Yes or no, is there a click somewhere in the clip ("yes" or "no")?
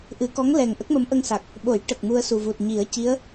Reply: no